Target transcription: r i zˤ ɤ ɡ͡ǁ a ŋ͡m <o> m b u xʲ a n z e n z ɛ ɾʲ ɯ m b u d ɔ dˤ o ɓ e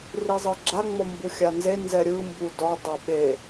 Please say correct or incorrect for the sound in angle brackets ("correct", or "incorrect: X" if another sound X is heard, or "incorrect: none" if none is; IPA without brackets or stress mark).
incorrect: ɔ